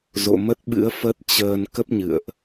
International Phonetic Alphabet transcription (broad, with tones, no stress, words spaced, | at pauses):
zo̰˧˨mə˦˥t̚ɓɨ̰˧˥ə̯ fə˦˥t̚t͡ɕəː˧n kə˦˥p̚ɲɨ̰˧˨ə̯ʔ